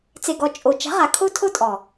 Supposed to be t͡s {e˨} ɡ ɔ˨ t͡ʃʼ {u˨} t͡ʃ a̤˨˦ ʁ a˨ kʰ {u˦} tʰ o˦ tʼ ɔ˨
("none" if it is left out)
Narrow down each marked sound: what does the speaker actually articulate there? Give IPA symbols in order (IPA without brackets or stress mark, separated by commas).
e˨, o˨, o˦